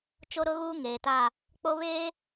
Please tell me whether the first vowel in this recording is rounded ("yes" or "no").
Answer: yes